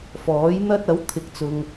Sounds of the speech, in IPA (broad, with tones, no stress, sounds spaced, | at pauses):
f ɔː˨˥ j n̪ ɐ˥ t̚ ɐ˨˥ w t̪ʰ ɪ˨˥ k̚ t͡s ʊ˨ ŋ